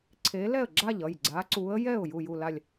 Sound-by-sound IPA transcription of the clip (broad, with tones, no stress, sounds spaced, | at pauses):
ǀʰ e˨˦ l ɛ˥˩ ə̯ ɡ͡ǁ a˥˩ ʎ ʌ˥˩ j ɡ͡ǀ a˨˦ ǀ u˨˦ ə̯ j ɛ˥˩ ʊ̯ j u˥˩ j u˥˩ l a˥˩ lʲ